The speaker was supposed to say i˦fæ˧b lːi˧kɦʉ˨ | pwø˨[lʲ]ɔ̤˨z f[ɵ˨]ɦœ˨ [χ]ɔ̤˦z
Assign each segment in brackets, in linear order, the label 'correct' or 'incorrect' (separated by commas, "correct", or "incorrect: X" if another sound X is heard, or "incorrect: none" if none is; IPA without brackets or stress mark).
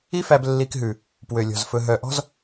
correct, correct, incorrect: ʔ